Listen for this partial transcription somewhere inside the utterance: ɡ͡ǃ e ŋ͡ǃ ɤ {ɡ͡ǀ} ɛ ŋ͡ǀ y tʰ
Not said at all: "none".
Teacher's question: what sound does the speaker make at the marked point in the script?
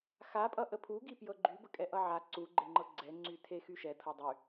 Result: ɡ͡ǀ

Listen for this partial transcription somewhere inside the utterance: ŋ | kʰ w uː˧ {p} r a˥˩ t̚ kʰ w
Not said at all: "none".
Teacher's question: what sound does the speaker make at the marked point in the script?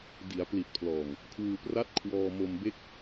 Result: p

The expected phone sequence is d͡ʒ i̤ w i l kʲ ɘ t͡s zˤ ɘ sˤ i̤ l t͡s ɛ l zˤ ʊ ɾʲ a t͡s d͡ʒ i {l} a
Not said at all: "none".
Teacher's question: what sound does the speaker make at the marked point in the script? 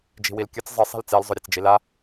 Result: l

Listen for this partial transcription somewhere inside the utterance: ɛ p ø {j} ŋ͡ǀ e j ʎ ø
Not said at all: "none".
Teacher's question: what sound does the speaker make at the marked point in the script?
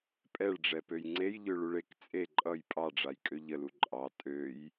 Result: j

